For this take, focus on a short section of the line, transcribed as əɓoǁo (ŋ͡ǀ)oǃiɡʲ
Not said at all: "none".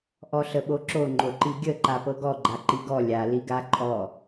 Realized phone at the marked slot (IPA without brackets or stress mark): ŋ͡ǃ